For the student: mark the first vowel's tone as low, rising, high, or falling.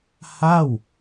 falling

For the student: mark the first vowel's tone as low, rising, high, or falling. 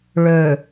low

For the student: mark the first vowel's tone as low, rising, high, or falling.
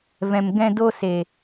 low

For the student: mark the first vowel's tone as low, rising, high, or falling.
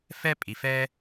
high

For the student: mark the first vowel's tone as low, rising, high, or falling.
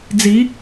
rising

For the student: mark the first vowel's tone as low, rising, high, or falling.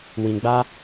low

